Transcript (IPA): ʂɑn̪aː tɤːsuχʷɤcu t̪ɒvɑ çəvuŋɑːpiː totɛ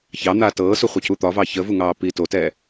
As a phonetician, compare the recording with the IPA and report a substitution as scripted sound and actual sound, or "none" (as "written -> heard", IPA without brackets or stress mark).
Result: ʂ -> ç